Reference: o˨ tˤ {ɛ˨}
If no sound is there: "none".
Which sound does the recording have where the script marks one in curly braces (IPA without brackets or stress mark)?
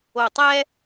ɛ˦